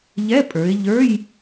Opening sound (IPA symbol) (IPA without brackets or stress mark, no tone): ʎ